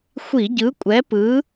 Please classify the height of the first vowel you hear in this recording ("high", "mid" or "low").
high